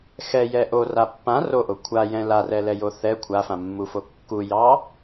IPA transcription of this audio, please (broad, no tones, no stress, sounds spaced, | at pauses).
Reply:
x ɛ j ɛ ʔ o r a pː ã r o ʔ o kʷʰ a j ɛ̃ l a r ɛ l ɛ j o θ ɛ kʷʰ a f ã mː u f o kː u j ɑ